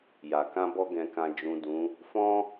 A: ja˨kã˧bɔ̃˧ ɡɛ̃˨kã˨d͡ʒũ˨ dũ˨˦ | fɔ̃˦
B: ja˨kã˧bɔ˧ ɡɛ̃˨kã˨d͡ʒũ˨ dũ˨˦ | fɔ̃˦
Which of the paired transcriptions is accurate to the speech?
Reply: B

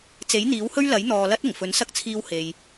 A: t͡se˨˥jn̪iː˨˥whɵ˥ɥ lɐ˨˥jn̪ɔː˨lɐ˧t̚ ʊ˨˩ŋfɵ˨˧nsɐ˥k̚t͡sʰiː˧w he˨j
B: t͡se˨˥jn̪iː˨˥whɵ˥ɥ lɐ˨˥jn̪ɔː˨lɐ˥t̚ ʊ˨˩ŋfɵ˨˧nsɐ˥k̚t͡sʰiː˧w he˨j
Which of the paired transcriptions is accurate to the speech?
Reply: B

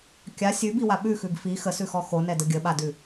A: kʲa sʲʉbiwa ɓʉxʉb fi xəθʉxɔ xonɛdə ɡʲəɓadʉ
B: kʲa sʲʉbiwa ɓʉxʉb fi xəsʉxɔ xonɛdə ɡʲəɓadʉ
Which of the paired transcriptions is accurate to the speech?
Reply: B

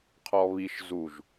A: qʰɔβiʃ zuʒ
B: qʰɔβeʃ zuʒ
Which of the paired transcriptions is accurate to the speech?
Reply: A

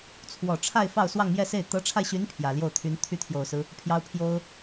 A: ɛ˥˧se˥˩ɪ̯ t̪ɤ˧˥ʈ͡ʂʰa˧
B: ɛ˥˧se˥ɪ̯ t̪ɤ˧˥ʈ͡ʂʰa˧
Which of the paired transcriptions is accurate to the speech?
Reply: A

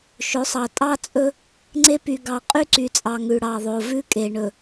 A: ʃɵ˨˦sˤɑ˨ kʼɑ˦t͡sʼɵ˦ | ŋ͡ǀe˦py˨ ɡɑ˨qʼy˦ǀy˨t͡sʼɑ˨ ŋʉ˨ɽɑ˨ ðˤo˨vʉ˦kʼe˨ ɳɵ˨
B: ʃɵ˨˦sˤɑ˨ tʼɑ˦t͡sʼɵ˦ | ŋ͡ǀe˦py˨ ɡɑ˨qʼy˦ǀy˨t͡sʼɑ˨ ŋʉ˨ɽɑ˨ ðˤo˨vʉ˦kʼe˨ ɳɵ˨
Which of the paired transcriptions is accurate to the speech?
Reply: B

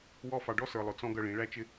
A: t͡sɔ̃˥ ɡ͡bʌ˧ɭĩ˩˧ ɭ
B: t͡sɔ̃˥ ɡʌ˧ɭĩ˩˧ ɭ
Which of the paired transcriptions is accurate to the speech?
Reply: B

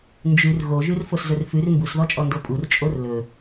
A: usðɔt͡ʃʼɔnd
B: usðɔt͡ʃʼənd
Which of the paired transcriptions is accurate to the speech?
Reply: A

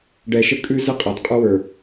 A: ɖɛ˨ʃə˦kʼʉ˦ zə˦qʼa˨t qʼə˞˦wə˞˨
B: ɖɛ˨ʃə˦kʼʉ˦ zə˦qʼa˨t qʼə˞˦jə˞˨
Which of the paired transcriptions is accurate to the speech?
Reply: A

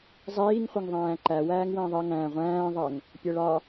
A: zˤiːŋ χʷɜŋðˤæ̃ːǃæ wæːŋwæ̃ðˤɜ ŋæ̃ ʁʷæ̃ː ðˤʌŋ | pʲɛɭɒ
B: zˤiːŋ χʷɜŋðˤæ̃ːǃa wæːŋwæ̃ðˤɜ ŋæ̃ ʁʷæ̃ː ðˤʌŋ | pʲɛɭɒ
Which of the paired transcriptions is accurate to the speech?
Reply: A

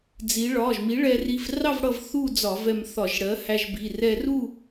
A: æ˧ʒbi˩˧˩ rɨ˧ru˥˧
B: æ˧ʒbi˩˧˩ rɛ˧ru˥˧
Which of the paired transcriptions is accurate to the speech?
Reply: B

